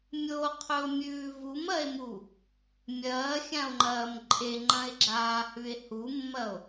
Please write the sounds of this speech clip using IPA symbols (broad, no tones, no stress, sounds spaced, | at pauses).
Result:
mʲ o qʰ ɵ o̯ mʲ ʉː v u m ɐ e̯ m u | mʲ ɐː xʲ ã o̯ ŋ͡ǃ ɐː m ǃʼ e ŋ͡ǃ ɐ̃ e̯ ɡ͡ǁ aː h ʉ e̯ h u mː ɐ o̯